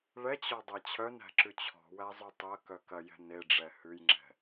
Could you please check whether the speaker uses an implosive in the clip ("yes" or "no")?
no